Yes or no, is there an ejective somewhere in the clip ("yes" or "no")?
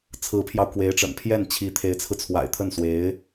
no